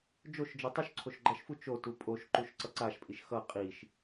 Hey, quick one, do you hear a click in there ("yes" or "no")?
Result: yes